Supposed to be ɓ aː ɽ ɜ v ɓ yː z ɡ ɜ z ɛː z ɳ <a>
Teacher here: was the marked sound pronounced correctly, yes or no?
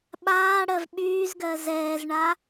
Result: yes